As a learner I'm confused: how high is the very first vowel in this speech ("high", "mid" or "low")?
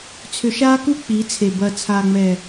high